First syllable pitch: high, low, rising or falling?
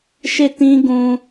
falling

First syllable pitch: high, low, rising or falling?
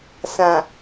low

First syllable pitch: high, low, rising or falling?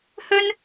high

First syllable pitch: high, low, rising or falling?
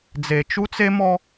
low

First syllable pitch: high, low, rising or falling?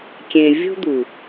low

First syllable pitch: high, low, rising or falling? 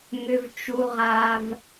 high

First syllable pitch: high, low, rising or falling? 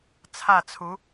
falling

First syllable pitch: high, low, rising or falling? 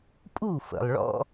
falling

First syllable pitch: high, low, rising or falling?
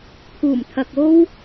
low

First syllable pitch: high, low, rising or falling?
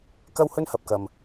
high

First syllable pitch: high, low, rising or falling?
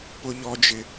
low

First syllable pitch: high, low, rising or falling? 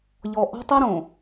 low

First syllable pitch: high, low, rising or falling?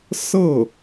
falling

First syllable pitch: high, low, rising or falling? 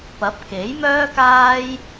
rising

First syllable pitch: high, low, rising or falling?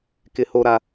low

